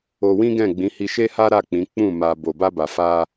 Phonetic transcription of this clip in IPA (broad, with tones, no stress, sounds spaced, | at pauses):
o˧ w ĩ˦ ɡ ɛ̃˦˨ ɡ͡b ĩ˨˦ h i˧ ʃ e˦ h a˦ ɾ a˦˨ k͡p ĩ˨˦ k͡p ũ˦˨ m a˧ b o˨ b a˧ b a˨ f a˧